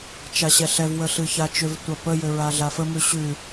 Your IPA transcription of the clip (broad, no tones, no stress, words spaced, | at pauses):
t͡ʃaɕɛɬɛv wəɬɨçat͡ʃʏv tʷapə jʏɹaɮafə mʉɕʉ